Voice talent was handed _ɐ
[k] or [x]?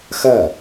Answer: x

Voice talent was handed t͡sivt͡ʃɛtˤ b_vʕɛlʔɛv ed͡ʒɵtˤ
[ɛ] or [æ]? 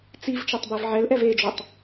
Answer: ɛ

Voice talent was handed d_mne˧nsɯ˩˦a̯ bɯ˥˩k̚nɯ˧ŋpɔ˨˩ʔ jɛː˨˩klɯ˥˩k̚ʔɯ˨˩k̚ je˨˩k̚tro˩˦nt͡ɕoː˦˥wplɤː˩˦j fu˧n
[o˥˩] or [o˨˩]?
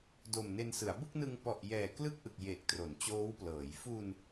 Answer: o˨˩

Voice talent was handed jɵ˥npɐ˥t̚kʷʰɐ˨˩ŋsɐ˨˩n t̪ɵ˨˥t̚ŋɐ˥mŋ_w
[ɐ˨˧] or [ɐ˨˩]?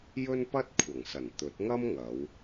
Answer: ɐ˨˧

